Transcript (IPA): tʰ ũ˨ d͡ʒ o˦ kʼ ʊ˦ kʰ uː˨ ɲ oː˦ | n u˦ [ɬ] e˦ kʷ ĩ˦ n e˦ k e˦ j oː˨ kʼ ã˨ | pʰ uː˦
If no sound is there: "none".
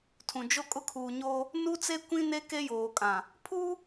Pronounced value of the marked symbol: t͡s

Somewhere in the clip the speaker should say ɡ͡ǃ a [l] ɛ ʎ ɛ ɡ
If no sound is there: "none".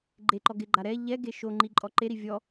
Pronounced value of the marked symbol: ɾ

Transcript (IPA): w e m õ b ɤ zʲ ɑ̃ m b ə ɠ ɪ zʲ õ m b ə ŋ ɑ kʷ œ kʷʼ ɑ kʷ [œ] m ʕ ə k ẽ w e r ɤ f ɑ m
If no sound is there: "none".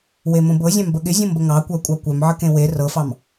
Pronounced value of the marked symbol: œ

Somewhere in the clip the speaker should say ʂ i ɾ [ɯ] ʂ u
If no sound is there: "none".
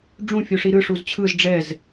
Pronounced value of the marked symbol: ɯ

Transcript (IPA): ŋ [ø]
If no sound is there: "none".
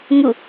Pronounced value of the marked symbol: u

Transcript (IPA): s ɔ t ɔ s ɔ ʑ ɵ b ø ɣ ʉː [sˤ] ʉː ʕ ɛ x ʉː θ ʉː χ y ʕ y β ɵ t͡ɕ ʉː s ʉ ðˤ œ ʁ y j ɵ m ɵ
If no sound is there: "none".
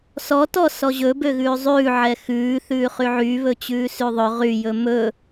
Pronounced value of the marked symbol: zˤ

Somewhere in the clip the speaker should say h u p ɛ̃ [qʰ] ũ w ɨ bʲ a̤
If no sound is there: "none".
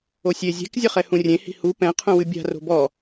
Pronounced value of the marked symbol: qʰ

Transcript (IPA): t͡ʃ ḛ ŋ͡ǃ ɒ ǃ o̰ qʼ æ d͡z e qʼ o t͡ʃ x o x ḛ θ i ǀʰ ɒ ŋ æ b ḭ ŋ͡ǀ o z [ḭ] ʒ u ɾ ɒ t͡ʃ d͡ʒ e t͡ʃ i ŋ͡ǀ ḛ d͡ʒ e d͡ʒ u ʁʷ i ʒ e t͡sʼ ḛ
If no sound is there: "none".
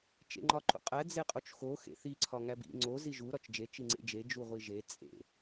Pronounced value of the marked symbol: i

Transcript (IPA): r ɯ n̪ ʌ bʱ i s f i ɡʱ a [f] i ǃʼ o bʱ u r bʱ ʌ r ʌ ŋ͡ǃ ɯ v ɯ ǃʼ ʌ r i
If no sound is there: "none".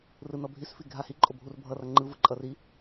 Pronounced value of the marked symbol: h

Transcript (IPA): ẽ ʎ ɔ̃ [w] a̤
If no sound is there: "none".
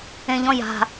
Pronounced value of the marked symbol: j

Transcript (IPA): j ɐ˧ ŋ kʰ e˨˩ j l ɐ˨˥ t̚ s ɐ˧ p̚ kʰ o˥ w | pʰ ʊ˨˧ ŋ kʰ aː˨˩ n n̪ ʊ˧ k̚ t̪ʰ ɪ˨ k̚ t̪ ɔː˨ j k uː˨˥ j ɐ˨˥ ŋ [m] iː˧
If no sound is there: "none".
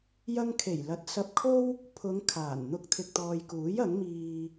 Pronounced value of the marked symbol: m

